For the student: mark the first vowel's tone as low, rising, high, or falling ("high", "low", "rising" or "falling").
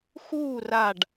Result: falling